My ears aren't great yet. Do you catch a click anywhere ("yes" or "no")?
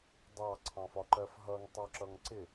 yes